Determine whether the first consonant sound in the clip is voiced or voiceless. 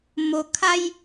voiced